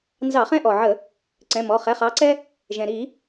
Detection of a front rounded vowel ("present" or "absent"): absent